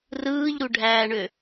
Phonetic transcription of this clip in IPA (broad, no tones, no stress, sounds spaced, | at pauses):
r ɯː ʎ ɾ u ɖʱ æː ɳ ø